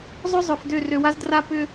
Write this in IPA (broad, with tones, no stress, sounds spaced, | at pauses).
zˤ ʏ˦ zˤ ʏ˨ f d ø˦˨ r ø˨ w a˦ z d r a˦ p ʏ˦